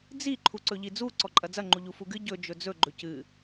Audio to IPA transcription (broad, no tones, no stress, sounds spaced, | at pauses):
d͡z i ǃʰ u ǀ ɵ ʎ i d͡z u ǀ ɔ ǃʼ ɐ d͡z ɐ ŋ͡ǃ u ʎ u f u ɡ ɨ ɟ ɵ d͡ʒ ɵ d͡z ɵ ɡ͡ǃ ɵ c ɨ